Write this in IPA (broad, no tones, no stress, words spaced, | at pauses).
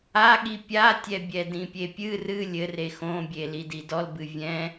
aɠi pʲatʲɛbʲɛ dĩpʲepʲɨ rɨ lʲɘ rexõbʲe lididɔlbɨ vʲɛ̃